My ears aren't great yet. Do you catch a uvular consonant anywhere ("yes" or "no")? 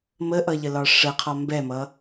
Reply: yes